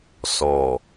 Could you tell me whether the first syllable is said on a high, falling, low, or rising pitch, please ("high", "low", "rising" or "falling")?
low